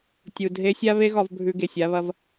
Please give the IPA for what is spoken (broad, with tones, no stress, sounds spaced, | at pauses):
tʲ u˨ dʱ e˧ sʲ a˦ β e˦ ɣ ɒ˧ v bʱ ʉ˧ ɡ e˨ sʲ a˦ β ɐ˦ v